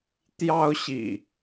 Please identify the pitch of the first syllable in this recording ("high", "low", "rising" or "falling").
high